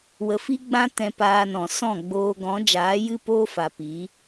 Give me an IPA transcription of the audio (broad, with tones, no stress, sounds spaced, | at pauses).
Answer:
w ə˨ f i˦ ɡ͡b ã˦ t ɛ̃˧ p aː˧ n ɔ̃˨ s ɔ̃˦˨ ɡ͡b oː˧ ɡ ɔ̃˨˦ d͡ʒ aː˨˦ j ɨ˦ p oː˦ f a˨ p iː˨˦